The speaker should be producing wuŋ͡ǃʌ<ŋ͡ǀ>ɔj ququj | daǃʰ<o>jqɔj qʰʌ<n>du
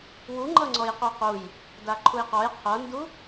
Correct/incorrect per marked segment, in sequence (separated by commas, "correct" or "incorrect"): correct, incorrect, correct